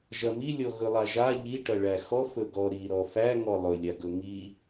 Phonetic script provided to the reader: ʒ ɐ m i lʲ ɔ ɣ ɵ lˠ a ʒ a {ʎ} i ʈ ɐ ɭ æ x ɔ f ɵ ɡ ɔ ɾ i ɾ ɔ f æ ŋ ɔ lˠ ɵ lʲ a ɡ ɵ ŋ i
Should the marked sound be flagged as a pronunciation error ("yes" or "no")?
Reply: no